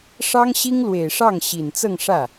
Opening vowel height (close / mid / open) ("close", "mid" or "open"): open